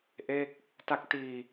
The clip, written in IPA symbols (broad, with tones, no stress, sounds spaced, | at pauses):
ʔ e˥˩ k̚ | t a˦˥ k̚ t iː˧